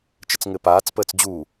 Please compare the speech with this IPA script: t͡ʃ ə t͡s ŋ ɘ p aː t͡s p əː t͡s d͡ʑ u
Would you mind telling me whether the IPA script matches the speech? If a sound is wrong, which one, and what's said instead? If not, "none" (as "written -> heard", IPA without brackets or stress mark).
none